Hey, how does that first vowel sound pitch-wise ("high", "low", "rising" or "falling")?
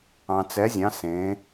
low